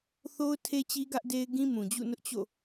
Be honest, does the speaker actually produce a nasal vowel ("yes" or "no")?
yes